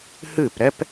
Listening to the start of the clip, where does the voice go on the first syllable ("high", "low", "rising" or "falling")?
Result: falling